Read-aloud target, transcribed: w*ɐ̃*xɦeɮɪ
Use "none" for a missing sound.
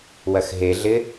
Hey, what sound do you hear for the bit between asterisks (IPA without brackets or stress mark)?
ɐ